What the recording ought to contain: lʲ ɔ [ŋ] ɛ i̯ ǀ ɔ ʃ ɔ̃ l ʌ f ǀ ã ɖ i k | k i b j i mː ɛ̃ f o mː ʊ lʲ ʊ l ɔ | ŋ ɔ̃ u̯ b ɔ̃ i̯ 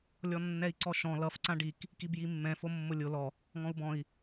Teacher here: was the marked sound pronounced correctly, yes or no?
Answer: no